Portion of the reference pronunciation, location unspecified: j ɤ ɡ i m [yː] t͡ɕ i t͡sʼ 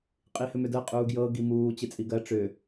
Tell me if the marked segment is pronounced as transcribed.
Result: no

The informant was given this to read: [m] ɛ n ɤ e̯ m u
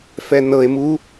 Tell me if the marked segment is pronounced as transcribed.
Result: no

